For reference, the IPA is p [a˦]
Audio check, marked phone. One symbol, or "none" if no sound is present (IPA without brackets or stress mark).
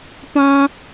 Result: ã˦